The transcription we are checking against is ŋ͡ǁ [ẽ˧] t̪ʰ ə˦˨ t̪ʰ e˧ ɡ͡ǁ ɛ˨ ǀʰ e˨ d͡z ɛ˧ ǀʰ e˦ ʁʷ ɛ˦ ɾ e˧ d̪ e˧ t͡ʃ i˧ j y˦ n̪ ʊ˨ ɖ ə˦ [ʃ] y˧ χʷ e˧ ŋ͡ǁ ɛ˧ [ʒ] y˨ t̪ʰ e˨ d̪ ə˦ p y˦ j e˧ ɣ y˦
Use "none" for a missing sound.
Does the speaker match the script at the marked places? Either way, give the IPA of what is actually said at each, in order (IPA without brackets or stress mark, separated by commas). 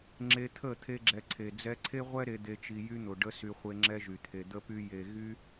e˧, s, ʒ